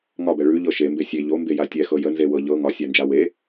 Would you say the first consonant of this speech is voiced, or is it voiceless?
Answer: voiced